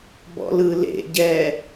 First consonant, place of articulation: labial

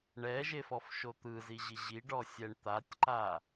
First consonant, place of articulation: retroflex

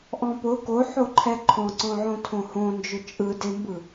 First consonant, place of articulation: glottal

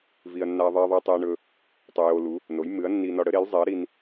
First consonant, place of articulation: labial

